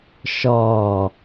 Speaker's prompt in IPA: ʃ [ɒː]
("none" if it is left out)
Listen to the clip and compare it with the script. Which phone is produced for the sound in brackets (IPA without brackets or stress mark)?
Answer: ɒː